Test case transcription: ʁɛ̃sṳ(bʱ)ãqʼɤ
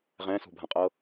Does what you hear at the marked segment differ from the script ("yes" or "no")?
no